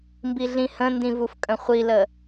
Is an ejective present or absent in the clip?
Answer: present